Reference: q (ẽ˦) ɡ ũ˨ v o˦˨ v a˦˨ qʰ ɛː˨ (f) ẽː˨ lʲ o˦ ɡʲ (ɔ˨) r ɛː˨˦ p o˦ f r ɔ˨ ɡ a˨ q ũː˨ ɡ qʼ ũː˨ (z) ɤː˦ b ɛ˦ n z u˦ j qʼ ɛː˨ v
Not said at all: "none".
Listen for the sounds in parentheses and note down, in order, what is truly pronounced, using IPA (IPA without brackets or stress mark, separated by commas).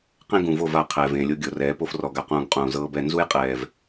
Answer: ẽ˦, v, o˨, z